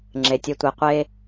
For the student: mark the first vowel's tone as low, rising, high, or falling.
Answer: low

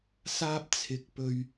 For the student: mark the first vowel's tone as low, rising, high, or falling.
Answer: high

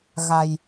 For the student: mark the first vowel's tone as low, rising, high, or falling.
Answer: low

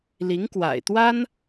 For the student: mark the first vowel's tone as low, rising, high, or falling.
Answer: rising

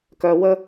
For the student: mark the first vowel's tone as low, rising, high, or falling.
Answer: low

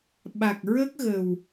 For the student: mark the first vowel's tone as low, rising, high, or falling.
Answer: low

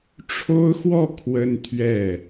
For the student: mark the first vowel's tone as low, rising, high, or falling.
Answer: high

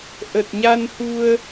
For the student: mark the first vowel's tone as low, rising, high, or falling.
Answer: low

